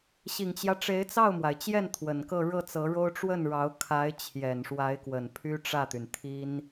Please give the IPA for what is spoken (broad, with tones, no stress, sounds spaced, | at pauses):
ɕ i˨˩ ŋ t͡ɕ j ä˦ ʈ͡ʂ e˧˥ ɪ̯ t͡s ɑ˥˩ ʊ̯ m w a˩ ɪ̯ t͡ɕ j ɛ˥˩ n t̪ʰ w ə˨˩ n k ɤ˥˧ ɻ ɤ˥˩ t͡s ɤ˧˥ ɻ o˥ ʊ̯ ʈ͡ʂ w ə˥˩ n ɻ ɑ˧˥ ʊ̯ kʰ a˧˥ ɪ̯ t͡ɕʰ j ɛ˨˩ n ʂ w a˧˥ ɪ̯ k w ə˨˩ n pʰ y˥ ʈ͡ʂ ä˥˩ t̪ y˩ n t̪ʰ i˥ n